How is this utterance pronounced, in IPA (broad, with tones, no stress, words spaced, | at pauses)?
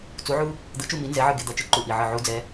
t͡su˧˥ʕu˥ | d̪ɯ˧˥t͡ʃu˥˧mi˧˥ nzɛ˧˥ʕɯ˥˧ ɡe˧d̪ʌ˧˩ t͡ʃɯ˥ǃu˧˩ʔi˧˩ʕɯ˧˩ ʕu˧˥d͡zɛ˧˥